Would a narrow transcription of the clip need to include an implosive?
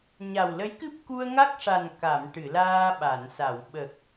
yes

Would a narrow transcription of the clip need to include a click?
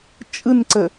yes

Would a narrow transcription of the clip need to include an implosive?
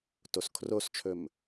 no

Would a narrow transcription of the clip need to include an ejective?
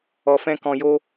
no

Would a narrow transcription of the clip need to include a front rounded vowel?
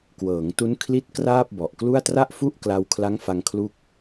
no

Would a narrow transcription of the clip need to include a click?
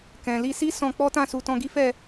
no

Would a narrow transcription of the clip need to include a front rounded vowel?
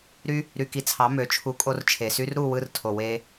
yes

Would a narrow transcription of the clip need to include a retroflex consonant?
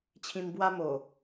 no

